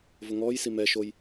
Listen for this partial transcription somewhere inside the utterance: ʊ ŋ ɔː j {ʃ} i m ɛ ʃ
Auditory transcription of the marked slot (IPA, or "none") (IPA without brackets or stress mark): s